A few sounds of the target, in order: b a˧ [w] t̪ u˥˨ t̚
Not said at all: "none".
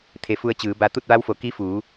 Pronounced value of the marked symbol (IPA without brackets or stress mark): none